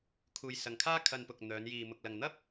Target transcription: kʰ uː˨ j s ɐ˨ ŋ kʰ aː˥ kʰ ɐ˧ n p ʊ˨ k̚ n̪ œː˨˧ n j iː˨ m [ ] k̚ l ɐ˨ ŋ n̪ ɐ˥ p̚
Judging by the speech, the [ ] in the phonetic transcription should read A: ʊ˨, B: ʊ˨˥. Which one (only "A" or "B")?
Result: A